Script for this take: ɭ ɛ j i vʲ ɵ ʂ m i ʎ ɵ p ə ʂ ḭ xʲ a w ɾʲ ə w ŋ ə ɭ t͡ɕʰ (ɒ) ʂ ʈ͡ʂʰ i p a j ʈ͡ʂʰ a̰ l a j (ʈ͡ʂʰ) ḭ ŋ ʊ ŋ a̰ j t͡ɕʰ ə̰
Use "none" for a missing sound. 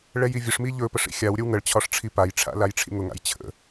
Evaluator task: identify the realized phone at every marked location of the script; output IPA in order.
ɒ, ʈ͡ʂʰ

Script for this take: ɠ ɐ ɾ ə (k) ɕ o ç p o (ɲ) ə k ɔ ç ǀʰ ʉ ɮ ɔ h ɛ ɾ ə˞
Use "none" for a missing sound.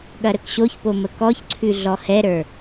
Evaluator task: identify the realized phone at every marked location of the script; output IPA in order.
k, m

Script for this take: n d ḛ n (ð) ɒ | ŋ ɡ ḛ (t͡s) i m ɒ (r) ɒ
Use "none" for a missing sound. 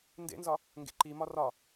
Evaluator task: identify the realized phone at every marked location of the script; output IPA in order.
z, ǃ, r

